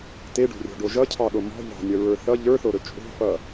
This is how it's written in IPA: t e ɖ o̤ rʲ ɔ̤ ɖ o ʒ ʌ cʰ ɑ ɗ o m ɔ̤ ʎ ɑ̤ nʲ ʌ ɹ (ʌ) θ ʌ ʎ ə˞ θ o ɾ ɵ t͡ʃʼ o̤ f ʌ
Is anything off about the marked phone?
yes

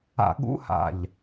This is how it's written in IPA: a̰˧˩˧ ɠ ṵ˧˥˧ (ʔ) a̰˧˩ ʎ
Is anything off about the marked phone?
yes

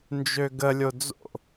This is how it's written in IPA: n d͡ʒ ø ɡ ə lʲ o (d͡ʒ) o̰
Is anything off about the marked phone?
yes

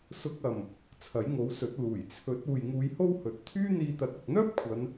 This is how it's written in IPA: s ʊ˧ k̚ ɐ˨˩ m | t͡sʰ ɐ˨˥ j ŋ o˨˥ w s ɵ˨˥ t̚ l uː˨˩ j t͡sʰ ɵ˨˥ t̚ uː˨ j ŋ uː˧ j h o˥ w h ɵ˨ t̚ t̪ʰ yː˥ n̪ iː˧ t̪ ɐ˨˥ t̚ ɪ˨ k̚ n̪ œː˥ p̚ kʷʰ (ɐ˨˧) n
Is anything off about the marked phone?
no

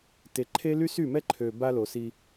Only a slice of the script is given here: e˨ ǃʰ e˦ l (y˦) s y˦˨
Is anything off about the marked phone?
no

